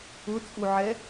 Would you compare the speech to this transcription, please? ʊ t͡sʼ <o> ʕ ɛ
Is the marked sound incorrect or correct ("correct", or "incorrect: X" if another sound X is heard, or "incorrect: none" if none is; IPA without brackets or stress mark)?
incorrect: u